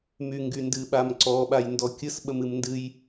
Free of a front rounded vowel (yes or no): no